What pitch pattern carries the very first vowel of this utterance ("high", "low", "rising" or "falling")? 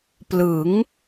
rising